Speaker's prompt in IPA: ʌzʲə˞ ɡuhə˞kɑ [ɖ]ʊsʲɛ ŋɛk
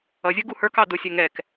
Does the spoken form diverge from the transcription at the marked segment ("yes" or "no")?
yes